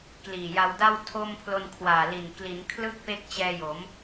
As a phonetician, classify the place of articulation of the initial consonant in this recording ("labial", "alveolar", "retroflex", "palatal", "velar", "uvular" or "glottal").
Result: velar